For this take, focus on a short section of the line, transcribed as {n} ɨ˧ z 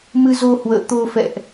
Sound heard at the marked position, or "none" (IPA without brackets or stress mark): m